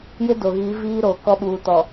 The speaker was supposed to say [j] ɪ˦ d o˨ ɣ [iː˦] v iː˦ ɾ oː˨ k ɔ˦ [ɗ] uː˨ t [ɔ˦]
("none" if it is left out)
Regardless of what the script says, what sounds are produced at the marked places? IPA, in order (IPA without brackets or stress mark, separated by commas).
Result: j, iː˨˦, ɓ, ɔ˨